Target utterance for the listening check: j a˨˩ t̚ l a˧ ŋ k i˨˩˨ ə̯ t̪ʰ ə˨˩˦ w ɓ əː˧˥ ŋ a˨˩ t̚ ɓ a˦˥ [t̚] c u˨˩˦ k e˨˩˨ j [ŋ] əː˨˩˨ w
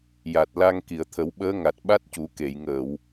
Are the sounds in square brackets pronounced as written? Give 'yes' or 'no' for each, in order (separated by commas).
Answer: yes, yes